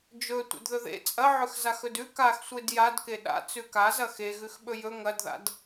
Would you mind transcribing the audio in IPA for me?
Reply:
d͡ʒ ɵ tʷ ḛ d ð ɵ ð ḛ t͡sʼ ɐ ʕ ɵ x z a x ɵ d ʉ k a x sʷ e d j a d k e ɗ a̰ t͡s ʉ k a z ɐ x e ɣ ʉ x ɓ ɵ j ɵ ŋ ɐ d ð a̰ d

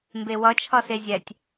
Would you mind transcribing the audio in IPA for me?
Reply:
m b e w ʌ t͡ʃʰ ʌ s e zʲ ɛ tʲ

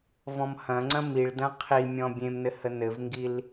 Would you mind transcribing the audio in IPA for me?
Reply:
v ɔ̃ m h ɐ̃ ŋ͡ǀ ɐ̃ m i ɭ d ɐ̃ qʰ i mʲ ɔ̃ bʲ ẽ m n ɘ h ə n ɘ v ŋ ɡ i l

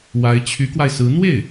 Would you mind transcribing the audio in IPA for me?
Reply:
w a˧˥ ɪ̯ t͡ɕʰ y˧˥ k w a˧ ɪ̯ s ɹ̩˧˥ n̪ w e˥˩ ɪ̯

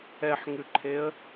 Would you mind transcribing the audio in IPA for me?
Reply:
ɛ ħ ŋ ʉ ǃʰ e ə̯

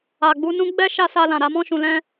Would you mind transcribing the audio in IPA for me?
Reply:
a˨ ɡ͡b u˧ n ũ˦ ɡ͡b ɛ˦ ʃ a˦ s a˧ l ã˨ ɾ a˨˦ m ɔ̃˦ ʃ ũ˧ l ɛ̃˦

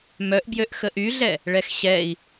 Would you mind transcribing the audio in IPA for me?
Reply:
m œ ʔ b j ø ʔ x ə ʔ y ɮ ɛ | ɭ ɛ x ɕ ɛ i̯

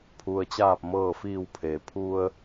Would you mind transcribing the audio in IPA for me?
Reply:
pʰ u˩ ə̯ t͡ɕ aː˧˩ p̚ m ɤː˧˩ f iː˧˩ w pʰ e˩ pʰ u˧ ə̯

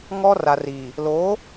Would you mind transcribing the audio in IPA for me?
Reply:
ŋ ɔ˦ r a˨ r iː˨ | l oː˨˦

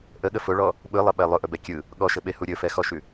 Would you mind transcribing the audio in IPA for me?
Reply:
ʔ ə ɠ ə f ʊ ɭ ɔ | ɓ ɯ lˠ ə ɓ ɛ lˠ ʊ ʔ ɵ b ɛ kʲ ɯ | ɠ ɔ ʃ ə ɓ e h u ɾʲ ɵ f ɛ x ɔ ʃ ʉ

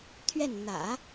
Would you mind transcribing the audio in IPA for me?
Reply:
t̪ʰ ɥ ɛ˥˩ n n̪ ä̰˨˩˦

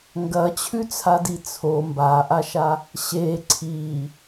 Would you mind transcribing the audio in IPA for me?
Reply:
ŋ ɡ ɐ t͡ɕʰ ʉ t͡sʰ a d i t͡sʰ o m b a ʔ a ʃ a | ɕ e ǀʰ i

